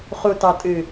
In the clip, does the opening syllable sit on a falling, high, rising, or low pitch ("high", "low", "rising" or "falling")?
low